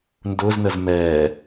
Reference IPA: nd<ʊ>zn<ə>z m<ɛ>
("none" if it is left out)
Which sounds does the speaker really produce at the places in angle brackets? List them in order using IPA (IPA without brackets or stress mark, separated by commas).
ʊ, ə, ɛ